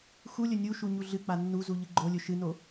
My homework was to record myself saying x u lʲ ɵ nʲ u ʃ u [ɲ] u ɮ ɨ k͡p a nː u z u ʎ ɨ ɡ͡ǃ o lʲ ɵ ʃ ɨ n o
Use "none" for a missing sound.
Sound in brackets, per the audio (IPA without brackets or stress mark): ɲ